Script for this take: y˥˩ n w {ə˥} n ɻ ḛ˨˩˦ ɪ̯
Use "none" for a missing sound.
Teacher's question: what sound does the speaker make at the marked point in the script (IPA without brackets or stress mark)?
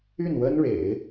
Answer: ə˥